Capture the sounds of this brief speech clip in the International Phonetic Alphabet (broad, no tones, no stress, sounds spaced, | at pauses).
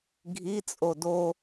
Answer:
ɡʱ i t͡sʼ o d o